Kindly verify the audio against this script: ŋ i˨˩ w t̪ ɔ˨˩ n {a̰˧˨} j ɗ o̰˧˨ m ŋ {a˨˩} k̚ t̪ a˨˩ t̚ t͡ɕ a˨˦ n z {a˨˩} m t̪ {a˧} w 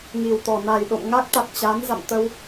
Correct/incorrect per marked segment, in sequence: incorrect, incorrect, incorrect, incorrect

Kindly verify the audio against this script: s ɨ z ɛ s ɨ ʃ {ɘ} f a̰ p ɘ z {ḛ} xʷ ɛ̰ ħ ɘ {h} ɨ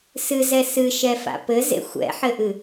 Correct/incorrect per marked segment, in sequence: incorrect, correct, incorrect

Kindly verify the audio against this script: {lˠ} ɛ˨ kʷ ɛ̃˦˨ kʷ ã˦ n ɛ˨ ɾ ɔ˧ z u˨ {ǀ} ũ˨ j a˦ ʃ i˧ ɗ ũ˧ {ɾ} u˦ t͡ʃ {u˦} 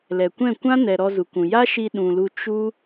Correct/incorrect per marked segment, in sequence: incorrect, incorrect, incorrect, correct

